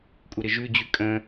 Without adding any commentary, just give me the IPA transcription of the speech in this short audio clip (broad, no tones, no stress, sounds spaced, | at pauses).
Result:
kʷʼ ɪ ɾ ɪ ʒ ʉ d͡ʑ ʉ kʼ ə̃